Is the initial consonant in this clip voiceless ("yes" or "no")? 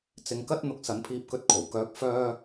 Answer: yes